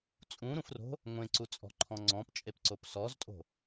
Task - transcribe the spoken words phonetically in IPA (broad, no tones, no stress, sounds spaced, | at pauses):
t͡sʼ ũ ɾ ũ f r o̤ | ŋʷ ẽ ǀ u t͡sʼ ɔ̤ ǃʰ ɔ̃ ŋ͡ǀ ɔ̃ p t͡ʃʼ e p ǀ o p s ɔ z tʼ o̤